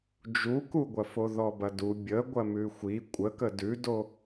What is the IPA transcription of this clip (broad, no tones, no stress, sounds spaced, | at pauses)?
d͡ʒ u k u ɡʷ ɐ f o ð ɔ b ɐ d u bʲ ə ɡʷ ɐ m ʉ xʷ i kʷʼ ə k ə d ʉ d o